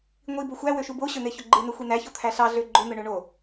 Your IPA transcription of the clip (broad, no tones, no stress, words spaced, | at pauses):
ŋʷi boxʷæwøʃu boɕøn̪e çoɡ͡ǃɯnø xʷin̪æço t̪ʰæɬɑ ɮøɡ͡ǃon̪ɯ ɳøɳo